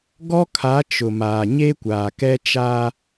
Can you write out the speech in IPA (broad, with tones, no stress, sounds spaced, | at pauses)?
ɡ ɔ˦ kʰ a˨˦ t͡ʃ ʊ˨ m aː˨ ɲ e˦ kʷ aː˨ k ɛ˦ t͡ʃ aː˦